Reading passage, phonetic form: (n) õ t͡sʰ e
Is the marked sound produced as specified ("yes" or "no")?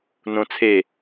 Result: yes